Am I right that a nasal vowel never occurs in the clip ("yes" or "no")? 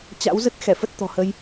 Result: yes